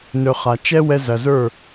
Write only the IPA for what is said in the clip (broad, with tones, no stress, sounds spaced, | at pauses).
n ɵ˧ χ a˨ t͡ʃ ɛ˦ w ɛ˧ z ɐ˨ z ə˞˦˨